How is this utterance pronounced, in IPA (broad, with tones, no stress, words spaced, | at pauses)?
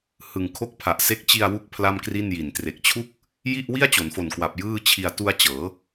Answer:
hɯ˨˩ŋkʰo˦˥k̚pʰa˨˩ʔse˦˥k̚ t͡ɕi˧a̯wu˦˥k̚ pʰla˥˩mkri˥˩nji˨˩n tre˨˩k̚t͡ɕʰu˥˩k̚ | ji˥˩ʔ wi˥˩a̯t͡ɕo˩˦nfo˨˩nkwa˨˩p̚ jɯː˥˩t͡ɕʰi˧a̯ tu˧a̯ t͡ɕɤː˩˦